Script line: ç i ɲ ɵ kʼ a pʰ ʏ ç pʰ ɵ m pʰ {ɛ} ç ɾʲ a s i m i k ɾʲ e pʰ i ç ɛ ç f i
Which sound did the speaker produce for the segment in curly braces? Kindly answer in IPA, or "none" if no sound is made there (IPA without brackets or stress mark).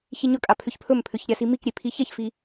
ʏ